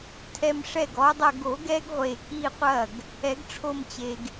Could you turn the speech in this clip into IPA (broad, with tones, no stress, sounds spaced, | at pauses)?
tʰ ɛ˧ m ʂ ɛ˥˩ ɡ ɔ˧˥ dˤ ɐ˥˧ ɡ o˨˩˦ ɡ ɛ˧˥ ɡ ʁʷ e˨˩ k i˥˧ qʷ ɐ˥˩ ɡ | ɛ˨˩˦ ɡ ʈ͡ʂʰ o˥˧ m t͡ɕ e˧ ɡ